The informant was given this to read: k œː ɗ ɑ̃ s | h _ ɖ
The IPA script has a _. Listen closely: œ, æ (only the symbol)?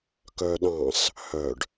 œ